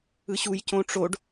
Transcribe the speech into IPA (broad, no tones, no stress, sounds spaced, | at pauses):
ɯ ɕ u j c õ ʈ͡ʂ o ɖ